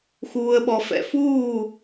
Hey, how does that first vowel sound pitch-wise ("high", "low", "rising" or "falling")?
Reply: low